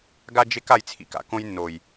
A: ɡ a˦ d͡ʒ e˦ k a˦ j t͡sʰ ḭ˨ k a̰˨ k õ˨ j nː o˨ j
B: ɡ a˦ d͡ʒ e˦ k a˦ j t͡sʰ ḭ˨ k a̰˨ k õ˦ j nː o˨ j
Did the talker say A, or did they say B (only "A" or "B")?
B